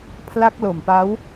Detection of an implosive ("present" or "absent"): absent